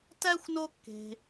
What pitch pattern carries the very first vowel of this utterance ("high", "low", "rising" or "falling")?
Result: high